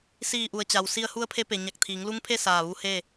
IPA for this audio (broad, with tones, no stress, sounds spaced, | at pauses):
s iː˧˩ ʔ u˩ ə̯ t͡ɕ a˩ w s i˧ ə̯ h u˧˥ ə̯ pʰ e˧˥ p e˩ ɲ a˧˩ k̚ t̪ʰ iː˩˧ ŋ l u˧˥ ŋ pʰ e˥˨ s aː˧˩ ʋ u˧˥ h e˥˨